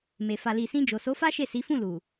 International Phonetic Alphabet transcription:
m e˨ f a˨ l i˨ s ĩ˧ d͡ʒ o˨ s o˨˦ f a˦ ʃ e˦˨ s i˨˦ f ũ˦˨ l u˨

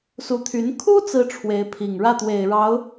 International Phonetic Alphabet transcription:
s u˧˥ t̪ʰ y˧˥ n kʰ u˥ t͡s ɹ̩˥ ʈ͡ʂʰ w e˧˥ ɪ̯ pʰ i˨˩ ŋ ɻ ä˥˩ t̪ w e˨˩ ɪ̯ ɻ ɑ˧˥ ʊ̯

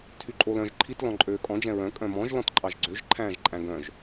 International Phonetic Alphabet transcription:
tʰ y ǃʼ o l œ̃ ʒ ǃʰ i t l ɔ̃ ǃʼ øː kʼ ɔ̃ d͡ʒ ɛ̃ ɹ œ̃ kʼ œ̃ m ɔ̃ ʒ l ɔ̃ t ǃʼ ɑ ʒ ɡ͡ǀ ø ʒ ǃʰ æ̃ː ʒ ǃʼ æ̃ ɡ œ̃ ʒ

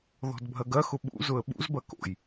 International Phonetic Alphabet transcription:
ð ɔ̤ d bʱ ɐ ɡ ɐ x ʊ ɓ ṵ z ʊ ə̯ ɓ ṵ z b ɐ k o̰ j

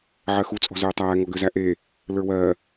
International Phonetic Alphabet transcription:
ʕ ɜ x u t͡sʼ ɔ̤ z øː tˤ æː ŋ ɔ ɡ ø z æ ʔ e | l ə˞ w ɜ

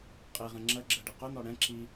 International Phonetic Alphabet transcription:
qʼ i ʁ ɛ̃ ŋ͡ǁ ɜ ɡ͡ǁ ɜ ɖ ɛ q ʊ n̪ ɔ ɽ ɛ̃ ǁ i

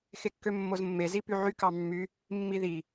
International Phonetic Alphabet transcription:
x e kː ø mː o z mː e z i p y ʕ y k ɑ mː y | mː i ð i

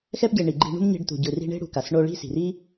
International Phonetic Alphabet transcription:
x ɛ˧ p ɟ e˨ ɳ i˨ ɡ͡ǃ i̤˧ ɳ ṳ˦ m ɲ e̤˧ ɖ t̪ ṳ˨ ɟ ɯ˨ r i̤˧ ɳ e̤˦ ɽ ṳ˨ k a˨ s ɳ o˧ ɭ i̤˦ s i̤˨ r i˦

